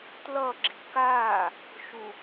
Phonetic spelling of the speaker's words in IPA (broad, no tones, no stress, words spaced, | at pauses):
tlʌ ɡ͡ǁi̤kaː | ʃu